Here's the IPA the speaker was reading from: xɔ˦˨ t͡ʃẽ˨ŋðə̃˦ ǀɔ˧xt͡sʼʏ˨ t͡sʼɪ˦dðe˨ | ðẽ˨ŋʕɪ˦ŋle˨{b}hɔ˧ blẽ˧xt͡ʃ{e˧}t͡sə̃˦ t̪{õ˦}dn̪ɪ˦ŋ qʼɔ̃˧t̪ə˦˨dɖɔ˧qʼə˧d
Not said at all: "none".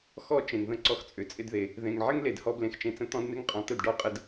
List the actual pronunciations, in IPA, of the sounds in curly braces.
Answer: d, ẽ˧, ɔ̃˦

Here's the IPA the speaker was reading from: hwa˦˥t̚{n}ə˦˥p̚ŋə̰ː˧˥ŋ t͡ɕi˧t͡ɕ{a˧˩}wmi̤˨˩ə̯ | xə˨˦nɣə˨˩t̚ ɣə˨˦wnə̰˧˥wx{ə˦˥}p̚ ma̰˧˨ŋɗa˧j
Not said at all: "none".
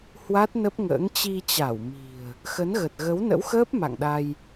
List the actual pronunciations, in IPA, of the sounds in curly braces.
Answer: n, a˧˩, əː˦˥

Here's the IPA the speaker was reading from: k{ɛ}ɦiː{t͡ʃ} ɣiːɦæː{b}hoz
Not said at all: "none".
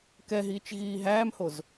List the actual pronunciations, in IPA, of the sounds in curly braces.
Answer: ɛ, t͡ʃ, m

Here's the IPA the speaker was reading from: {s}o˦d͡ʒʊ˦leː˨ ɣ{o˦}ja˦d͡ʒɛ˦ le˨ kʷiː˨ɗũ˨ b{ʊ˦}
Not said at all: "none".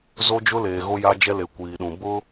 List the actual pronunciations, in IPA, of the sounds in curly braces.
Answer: z, o˦, ʊ˦

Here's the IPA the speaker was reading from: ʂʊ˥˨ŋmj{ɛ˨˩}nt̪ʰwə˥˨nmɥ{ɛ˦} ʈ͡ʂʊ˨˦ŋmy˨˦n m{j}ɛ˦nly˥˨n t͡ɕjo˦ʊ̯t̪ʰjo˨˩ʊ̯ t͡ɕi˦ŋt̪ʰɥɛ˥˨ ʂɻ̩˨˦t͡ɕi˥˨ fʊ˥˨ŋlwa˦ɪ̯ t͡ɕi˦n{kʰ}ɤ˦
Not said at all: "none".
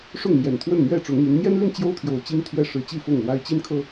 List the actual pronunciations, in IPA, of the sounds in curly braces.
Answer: ɛ˨˩, ɛ˥˨, j, kʰ

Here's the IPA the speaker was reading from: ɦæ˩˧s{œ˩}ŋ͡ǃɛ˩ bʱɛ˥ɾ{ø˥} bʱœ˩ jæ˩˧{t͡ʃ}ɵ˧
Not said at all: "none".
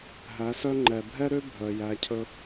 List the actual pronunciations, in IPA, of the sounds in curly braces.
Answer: œ˧, ø˥, cʰ

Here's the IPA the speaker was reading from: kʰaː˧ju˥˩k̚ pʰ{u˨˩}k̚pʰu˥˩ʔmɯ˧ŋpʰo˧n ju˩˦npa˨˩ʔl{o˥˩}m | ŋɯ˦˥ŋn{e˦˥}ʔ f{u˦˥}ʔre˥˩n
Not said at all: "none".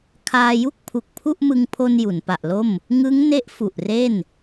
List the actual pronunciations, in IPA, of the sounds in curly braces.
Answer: u˨˩, o˥˩, e˦˥, u˨˩

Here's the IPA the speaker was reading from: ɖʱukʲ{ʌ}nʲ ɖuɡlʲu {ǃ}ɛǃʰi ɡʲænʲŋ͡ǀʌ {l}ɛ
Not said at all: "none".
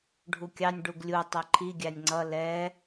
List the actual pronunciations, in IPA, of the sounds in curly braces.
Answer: ɑ, tˤ, l

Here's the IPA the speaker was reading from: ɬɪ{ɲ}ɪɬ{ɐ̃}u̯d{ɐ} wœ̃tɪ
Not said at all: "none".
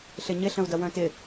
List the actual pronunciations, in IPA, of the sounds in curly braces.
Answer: ɲ, ə̃, ɐ

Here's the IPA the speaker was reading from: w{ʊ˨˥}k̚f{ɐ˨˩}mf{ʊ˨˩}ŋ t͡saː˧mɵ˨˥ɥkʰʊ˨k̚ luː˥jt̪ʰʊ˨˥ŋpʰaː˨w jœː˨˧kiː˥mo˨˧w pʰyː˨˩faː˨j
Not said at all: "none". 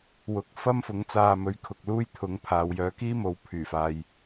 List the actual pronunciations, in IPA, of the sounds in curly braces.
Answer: ʊ˨˥, ɐ˥, ʊ˨˧

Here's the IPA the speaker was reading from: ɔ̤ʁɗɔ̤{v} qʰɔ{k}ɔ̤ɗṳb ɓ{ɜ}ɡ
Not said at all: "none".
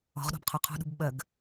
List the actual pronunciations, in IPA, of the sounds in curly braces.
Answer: b, qʰ, ɜ

